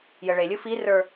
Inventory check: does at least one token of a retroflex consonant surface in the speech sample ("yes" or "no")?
yes